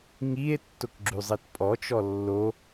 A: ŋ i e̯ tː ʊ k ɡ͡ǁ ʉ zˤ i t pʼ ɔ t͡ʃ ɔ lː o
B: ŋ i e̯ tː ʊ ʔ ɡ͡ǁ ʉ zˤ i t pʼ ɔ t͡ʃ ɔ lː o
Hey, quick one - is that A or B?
A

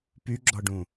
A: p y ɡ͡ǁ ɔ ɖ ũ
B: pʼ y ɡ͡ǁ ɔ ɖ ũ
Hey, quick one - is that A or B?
A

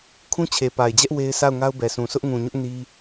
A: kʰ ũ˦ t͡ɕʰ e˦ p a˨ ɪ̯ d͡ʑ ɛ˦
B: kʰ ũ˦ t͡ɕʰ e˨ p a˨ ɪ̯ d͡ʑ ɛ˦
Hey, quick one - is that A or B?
B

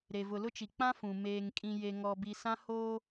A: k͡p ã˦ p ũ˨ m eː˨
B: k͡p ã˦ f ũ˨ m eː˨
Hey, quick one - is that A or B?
B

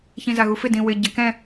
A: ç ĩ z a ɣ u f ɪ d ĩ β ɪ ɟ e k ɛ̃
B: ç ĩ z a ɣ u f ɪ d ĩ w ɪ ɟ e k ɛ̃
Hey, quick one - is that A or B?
B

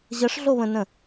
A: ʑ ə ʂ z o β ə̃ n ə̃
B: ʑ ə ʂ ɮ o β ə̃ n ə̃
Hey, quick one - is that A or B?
B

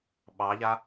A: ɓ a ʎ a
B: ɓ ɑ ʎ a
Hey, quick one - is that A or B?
B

